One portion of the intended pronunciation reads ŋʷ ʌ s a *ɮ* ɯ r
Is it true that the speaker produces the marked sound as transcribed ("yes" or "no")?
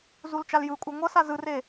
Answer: no